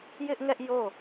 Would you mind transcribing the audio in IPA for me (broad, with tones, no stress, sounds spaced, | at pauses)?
j ɪ˦ ʔ ŋ ɛ˦ ʔ j o˦˨